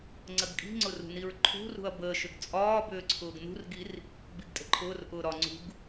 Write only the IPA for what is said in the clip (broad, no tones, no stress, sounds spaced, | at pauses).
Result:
ŋ͡ǀ ə ɡ kʼ i̤ ŋ͡ǀ ʊ r ṳ n i ɹ ǃʰ ṳ r ṳ ɐ̯ b əː ʃ ʏ ɡ t͡sʼ ɒː b ʏː ǀʰ ʊː ɡ n ṳ r ɡ i r | b i ɡ tʼ ə̤ ǃʰ ʊː r ʔ ʊː ɾ ɒ ŋ͡ǀ ṳ ɡ